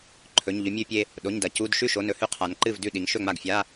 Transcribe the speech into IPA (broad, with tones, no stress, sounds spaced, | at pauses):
ǃʰ ɵ˩˧˩ ɲ ʎ ɵ˧ mʲ ʉ˧ pʲ e˧ | ɗ o˩˧˩ ɲ d ɐ˩˧ c u˩˧˩ d ʃ ʉ˥˩ ʃ o˩˧˩ n ɵ˦˥ h ʉ˧ qʰ a˩˧ n ǃ ɨ˥˩ v d ʉ˥˩ ɗ i˩˧ ŋ ʃ ɵ˥˩ ŋ͡m a˥˩ ɡ fʲ a˧˥˧